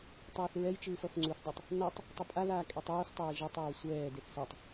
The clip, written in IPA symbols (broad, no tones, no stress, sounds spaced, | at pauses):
tˤ ɛː θ ɹ ɛ j t͡ʃ ɯː f ʌ θ ŋ͡ǀ u θ dˤ ʌ tˤ | n ʌ tˤ | tˤ u pʼ a l aː kʼ ɛ tˤ oː s tˤ eː ʒ ɛ tˤ ɹ o sʷ ɛː d e θ s ɛ tˤ